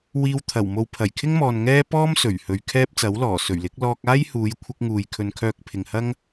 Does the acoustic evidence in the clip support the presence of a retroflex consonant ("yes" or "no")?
no